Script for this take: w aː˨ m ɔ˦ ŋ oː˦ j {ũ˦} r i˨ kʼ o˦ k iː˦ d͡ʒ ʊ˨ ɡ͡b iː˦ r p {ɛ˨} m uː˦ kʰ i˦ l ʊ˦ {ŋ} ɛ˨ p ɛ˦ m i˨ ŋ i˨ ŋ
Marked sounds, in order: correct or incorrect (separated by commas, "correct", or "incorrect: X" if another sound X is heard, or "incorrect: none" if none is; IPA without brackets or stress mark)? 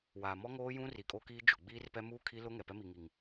correct, incorrect: ɛ˦, correct